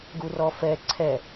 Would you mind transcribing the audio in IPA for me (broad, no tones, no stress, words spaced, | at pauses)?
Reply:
ɡurɔfɛ ǀʰɛ